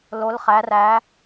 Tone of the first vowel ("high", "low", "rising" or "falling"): rising